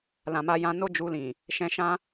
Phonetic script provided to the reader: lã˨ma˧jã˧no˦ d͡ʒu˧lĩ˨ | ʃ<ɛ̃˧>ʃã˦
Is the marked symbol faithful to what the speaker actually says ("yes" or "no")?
yes